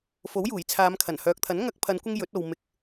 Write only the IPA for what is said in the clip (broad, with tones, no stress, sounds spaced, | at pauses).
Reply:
f o˨˥ w j uː˨˩ j t͡sʰ aː˨˧ m kʰ ɐ˨˩ n h œː˨ k̚ t̪ʰ ɐ˨˥ n ŋ ɐ˧ k̚ pʰ ɐ˨˧ n kʷ ɪ˧ ŋ j ɵ˨˥ t̚ o˨ w m ɪ˨ k̚